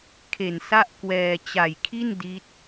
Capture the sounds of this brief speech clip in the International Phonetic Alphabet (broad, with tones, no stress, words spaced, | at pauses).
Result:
kʰe˨˩nsa˥˩ʔkwɛː˧ t͡ɕa˨˩jkʰi˥˩n di˦˥t̚